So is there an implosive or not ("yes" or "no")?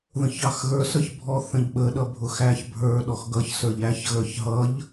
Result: yes